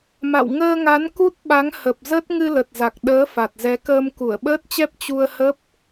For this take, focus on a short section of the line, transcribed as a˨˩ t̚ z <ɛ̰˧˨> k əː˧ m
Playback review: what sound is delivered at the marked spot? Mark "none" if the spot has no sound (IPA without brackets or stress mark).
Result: ɛ˨˦